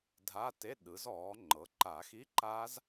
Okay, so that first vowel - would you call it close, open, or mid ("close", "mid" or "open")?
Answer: open